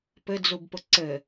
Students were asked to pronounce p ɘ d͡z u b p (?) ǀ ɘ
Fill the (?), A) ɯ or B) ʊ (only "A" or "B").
B